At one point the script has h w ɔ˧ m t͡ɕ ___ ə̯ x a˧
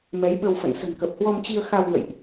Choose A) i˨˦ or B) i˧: B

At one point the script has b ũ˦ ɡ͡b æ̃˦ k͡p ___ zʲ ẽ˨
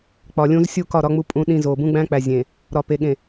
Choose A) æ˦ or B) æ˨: B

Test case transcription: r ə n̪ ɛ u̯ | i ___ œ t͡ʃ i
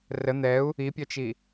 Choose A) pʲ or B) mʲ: A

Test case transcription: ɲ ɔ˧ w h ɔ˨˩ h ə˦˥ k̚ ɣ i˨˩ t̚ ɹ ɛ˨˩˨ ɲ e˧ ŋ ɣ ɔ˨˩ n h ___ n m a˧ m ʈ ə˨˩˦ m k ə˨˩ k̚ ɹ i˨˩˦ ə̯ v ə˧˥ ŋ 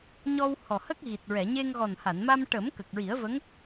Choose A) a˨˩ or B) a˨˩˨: B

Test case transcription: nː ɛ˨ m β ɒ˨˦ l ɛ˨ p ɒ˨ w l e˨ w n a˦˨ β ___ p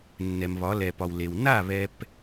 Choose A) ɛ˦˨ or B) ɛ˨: B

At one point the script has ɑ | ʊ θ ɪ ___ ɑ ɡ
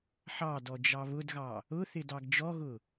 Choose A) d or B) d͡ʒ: A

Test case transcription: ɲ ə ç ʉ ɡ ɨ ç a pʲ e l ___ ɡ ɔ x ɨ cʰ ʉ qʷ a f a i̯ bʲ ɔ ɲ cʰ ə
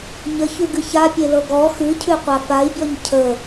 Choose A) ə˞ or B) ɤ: B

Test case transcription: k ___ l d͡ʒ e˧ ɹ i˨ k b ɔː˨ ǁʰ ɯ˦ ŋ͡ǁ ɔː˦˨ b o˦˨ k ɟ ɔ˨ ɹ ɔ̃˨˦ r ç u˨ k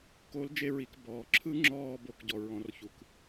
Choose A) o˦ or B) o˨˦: B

